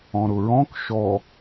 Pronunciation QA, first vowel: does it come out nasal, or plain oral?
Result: nasal